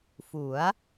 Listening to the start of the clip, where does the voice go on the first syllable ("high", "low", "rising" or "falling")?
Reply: rising